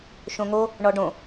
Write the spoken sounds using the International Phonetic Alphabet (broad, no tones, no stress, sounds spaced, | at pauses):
ʃ õ ŋ o | ɳ ɔ ɖ õ